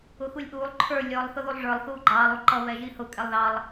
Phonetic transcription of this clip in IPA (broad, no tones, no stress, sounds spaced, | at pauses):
ʊ x u lʲ ʔ uː lˠ ǃʰ ə˞ lʲ ɔ lˠ θ ʊ ð u lˠ ʐ ə˞ lˠ θ uː ɡ͡ǃ ɑː lˠ u ǃ ʌ β ɛ ʒ i h ʊ kʼ ɛ lˠ ð ɑ lˠ